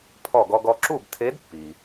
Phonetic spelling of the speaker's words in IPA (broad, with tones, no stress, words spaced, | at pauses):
pʰɔ˧˩ɡɔ˧ɡɔ˧ ǁu˥˨btʰe˧˥dpːi˩